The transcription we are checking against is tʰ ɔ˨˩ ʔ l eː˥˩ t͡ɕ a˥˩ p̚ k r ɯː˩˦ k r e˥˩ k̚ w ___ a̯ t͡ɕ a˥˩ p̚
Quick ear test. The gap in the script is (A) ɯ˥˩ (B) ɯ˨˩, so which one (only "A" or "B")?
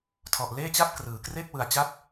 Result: B